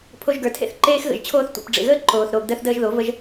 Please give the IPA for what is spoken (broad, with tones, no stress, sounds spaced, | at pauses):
pʰ o˧ ʒ ɡ ə˞˨ tʰ ḛ˦ θ ǃ eː˦ x ɣ ə̰˨ ʒ t͡ɕʰ oː˦ θ tʷ ḛ˧ p ɖ͡ʐ ḛ˨ ɣ əː˦ ǃ oː˨ θ ɾ oː˨ ɡ d əː˧ θ d əː˧ ʒ ð o˨˦ v ə˦ ʒ